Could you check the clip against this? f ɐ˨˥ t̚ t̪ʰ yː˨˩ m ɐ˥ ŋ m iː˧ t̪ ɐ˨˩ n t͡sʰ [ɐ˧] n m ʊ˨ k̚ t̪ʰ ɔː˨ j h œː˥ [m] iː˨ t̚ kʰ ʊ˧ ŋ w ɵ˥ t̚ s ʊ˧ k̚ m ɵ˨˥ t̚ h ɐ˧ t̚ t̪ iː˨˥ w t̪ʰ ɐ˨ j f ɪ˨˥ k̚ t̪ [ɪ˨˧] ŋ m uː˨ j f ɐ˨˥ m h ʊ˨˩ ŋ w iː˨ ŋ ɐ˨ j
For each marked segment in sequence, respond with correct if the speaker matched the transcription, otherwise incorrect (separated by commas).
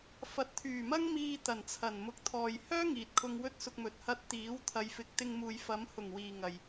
incorrect, incorrect, incorrect